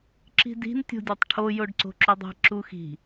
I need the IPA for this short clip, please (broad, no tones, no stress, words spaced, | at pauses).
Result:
ǁi̤di̤n tʲo̤dʲɒtˤʈʰo joɖǀo̤ǁudˤi̤ ǁuxi̤